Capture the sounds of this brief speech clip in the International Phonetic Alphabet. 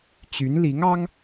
t͡ɕ y˧˥ n l i˧˥ ŋ ɑ˥ ŋ

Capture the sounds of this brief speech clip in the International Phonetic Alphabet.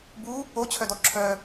b u | o t͡ɕʰ œ d ɔ ǁʰ œ

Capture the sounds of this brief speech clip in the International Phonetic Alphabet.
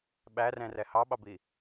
ɓ æ r ɛ̃ r ɛ h ɑ ɓ ɑ b i

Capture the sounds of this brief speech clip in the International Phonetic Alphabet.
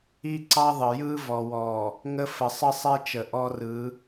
i˦ ǀ ɑ˦ ðˤ ə˨ j ɯ˦ v ɔ˨ w ɔ˨ | ŋ ə˦ f ə˨ sˤ ə˦ sˤ ɛ˦ t͡ʃ ə˨ ʔ ɔ˦ r ɯ˨˦

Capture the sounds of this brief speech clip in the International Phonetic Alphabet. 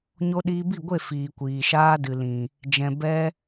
ɲ o˧ ɗ iː˧ b i˦˨ ɡʷ e˦˨ f iː˨ kʷ iː˨ ʃ aː˧ d ɨ˨ l ĩ˨ | d͡ʒ ɛ̃˨ b ɛ˧

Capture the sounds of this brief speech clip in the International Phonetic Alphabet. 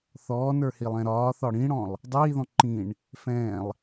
θ ɔː n ə˞ h i lˠ ɛ̃ ɾ ɒː θ ɒ ɽ ĩ ɽ ɔ̃ lˠ | dˤ iː ð ɔ̃ ǃ ĩ ɳ | f ɛ̃ː lˠ

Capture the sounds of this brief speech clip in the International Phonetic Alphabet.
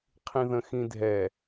qʰ ĩ ð ə̃ x ĩ dʱ ɛ

